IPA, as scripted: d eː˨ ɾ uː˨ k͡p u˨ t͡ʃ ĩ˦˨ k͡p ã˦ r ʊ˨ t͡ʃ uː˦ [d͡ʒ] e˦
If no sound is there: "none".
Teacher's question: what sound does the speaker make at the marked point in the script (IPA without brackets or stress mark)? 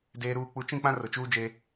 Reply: d͡ʒ